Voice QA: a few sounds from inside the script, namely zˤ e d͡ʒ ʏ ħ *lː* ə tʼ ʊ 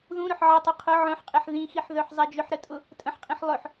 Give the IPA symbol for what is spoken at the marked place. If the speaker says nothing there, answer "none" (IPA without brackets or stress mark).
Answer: ɾ